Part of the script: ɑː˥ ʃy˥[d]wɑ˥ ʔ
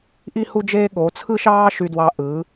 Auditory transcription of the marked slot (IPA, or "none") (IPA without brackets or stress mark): d